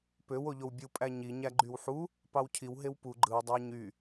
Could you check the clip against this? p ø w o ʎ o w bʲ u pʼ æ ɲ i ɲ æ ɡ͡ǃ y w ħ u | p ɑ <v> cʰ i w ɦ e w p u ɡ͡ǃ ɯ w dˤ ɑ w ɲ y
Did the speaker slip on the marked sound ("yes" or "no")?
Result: yes